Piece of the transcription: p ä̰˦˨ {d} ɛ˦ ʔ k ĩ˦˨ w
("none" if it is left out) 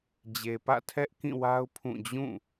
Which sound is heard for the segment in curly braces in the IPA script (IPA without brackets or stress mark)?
tʰ